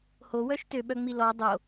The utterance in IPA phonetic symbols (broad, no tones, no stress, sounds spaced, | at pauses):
h o w œ ʃ t ø ɓ œ ŋ͡m i l ɔ dˤ o